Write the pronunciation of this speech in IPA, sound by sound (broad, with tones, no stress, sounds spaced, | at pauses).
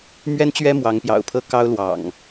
m ɥ ɛ˦ n t͡ɕ ɥ ɛ˦ m w ɑ˨˦ ŋ p j ɑ̰˨˩ ʊ̯ pʰ ɤ˥˨ k ɑ˦ ʊ̯ l w ɑ̰˨˩ ŋ